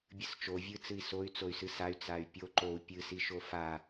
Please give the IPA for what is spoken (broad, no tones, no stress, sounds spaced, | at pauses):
bʲ ɨ s t͡ʃ o vʲ ɨ t͡s ɨ i̯ s o y̯ t͡s o y̯ s ɨ s a y̯ t͡s a y̯ pʲ o ǃ o u̯ pʲ ɨ s i ʃ o f a